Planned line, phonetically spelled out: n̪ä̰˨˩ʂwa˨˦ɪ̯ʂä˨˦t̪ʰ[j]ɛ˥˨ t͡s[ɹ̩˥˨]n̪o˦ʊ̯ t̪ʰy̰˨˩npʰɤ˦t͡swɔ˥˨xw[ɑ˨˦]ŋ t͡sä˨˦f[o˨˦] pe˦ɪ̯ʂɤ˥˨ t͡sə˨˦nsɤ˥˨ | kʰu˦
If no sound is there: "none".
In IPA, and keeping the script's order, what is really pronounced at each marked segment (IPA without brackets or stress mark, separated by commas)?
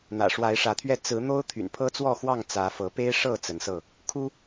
ɥ, ɹ̩˨˦, ɑ˥˨, ɤ˨˦